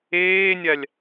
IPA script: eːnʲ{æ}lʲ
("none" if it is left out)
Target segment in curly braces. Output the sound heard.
a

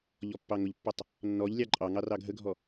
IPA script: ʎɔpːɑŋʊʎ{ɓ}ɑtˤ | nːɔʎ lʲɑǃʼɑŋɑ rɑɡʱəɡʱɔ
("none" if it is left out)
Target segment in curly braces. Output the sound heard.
pː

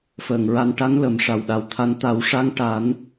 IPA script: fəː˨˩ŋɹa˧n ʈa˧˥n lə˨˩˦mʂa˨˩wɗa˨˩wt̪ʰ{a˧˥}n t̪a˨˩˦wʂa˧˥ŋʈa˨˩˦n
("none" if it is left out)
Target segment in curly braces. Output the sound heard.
a˧˥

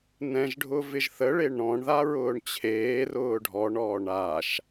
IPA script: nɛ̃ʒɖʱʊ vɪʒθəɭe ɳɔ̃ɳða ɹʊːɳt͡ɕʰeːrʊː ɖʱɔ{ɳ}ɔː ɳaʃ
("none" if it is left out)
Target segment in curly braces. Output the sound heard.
ɳ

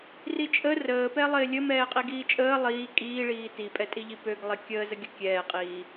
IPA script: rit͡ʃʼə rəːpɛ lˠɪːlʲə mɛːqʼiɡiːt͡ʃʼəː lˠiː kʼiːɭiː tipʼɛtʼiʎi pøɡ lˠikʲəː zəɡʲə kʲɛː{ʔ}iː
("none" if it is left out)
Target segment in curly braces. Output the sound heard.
qʼ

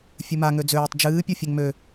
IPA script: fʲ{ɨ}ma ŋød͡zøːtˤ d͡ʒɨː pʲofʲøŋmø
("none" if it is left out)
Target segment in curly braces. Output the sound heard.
ɨ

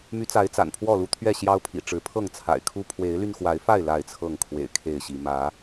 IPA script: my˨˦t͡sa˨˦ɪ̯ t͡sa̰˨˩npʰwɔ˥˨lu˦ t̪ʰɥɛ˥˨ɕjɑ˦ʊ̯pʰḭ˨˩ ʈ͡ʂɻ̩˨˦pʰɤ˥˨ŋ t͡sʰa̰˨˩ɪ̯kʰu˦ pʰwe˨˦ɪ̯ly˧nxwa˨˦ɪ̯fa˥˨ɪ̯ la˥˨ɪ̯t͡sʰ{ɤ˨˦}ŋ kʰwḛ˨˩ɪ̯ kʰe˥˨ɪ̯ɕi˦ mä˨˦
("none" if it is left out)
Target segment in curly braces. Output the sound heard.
ɤ˥˨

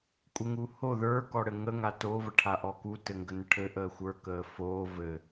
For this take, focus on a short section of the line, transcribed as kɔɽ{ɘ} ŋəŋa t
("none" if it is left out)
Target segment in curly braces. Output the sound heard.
ɘ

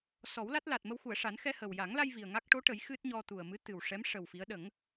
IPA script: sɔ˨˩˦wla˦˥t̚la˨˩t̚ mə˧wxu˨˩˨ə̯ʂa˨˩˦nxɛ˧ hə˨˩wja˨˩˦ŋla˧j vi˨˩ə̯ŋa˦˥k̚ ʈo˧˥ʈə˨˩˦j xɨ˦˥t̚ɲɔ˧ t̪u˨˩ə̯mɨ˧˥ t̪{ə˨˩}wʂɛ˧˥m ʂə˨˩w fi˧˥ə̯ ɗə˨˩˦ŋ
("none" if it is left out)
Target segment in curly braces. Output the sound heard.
ɨ˨˩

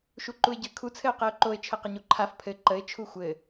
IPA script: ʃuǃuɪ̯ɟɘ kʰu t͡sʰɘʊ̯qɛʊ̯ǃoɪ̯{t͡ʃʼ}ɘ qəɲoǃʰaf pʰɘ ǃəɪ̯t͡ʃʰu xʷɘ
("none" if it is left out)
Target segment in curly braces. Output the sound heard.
t͡ʃʰ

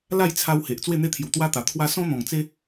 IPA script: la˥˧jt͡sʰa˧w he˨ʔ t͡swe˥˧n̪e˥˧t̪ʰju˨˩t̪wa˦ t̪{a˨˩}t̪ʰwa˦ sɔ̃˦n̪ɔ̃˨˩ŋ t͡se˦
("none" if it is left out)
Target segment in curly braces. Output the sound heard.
a˨˩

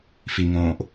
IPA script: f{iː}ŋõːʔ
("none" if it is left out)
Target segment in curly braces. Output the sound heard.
i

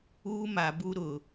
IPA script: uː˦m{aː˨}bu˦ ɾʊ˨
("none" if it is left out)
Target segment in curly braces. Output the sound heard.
a˨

